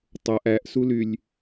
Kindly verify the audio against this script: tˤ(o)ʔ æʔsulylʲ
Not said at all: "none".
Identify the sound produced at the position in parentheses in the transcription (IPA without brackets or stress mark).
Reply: o